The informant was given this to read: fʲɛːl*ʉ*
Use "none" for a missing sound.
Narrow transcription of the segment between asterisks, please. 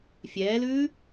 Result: ʉː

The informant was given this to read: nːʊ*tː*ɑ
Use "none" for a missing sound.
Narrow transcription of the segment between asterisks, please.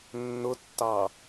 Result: tː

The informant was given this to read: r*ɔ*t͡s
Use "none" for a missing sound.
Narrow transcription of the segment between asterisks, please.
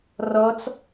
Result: ɔ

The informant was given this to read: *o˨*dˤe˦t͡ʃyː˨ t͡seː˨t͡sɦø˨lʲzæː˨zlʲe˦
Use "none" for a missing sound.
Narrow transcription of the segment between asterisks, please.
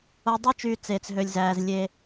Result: o˨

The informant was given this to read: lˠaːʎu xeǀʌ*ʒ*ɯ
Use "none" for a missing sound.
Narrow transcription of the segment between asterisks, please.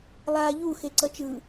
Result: t͡ʃ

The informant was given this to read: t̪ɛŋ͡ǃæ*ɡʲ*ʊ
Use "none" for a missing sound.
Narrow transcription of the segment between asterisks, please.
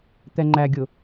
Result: ɡʲ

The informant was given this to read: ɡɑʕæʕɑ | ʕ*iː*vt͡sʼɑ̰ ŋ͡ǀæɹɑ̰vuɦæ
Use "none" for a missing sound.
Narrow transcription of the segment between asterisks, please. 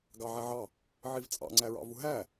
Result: i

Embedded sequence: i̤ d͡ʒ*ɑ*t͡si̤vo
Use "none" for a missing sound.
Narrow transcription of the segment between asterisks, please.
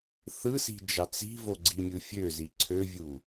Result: ɑ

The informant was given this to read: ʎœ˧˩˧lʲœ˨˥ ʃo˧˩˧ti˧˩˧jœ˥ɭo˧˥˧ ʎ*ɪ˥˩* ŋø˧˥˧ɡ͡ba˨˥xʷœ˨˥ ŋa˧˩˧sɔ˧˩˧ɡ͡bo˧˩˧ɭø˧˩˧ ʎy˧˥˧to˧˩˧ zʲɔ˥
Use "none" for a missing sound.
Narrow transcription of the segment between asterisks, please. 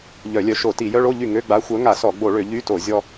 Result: y˥˩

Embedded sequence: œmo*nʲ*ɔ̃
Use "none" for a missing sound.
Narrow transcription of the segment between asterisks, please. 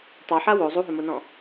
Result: n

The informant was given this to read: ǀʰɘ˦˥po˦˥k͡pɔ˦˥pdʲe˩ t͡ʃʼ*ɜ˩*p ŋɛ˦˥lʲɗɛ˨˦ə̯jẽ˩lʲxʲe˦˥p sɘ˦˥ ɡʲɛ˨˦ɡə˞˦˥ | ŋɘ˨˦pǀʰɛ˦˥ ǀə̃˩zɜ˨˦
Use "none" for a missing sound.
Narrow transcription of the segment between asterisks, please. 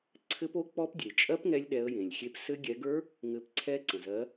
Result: ɜ˦˥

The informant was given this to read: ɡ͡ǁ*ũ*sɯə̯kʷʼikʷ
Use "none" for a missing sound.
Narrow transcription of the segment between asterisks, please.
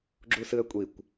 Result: u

